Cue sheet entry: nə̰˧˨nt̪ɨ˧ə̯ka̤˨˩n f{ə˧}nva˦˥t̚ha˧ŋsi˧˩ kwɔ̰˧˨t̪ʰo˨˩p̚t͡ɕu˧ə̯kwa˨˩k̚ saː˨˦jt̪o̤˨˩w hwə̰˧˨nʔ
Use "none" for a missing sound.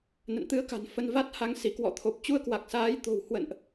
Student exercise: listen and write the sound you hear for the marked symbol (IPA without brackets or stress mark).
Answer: ə˧